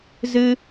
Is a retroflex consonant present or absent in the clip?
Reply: absent